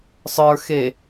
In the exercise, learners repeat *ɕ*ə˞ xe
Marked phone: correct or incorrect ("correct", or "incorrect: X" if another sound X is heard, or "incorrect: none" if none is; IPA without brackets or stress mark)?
incorrect: sˤ